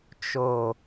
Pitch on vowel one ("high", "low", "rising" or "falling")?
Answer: low